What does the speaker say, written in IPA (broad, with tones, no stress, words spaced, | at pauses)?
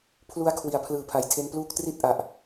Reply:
pʰlu˦˥a̯ kʰwi˩˦a̯pʰlɯː˩˦pʰa˩˦j tʰe˧npluː˦˥k̚tri˥˩t̚ ʔa˨˩ʔ